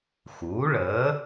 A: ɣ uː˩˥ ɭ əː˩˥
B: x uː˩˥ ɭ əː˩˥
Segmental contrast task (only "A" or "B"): B